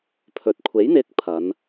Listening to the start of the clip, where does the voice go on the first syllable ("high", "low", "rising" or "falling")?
low